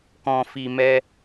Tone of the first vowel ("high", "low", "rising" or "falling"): low